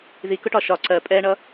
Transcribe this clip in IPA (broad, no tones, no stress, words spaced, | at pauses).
ðikʊʈɒ ʃɒ ǀɜ pʼɛɳʌ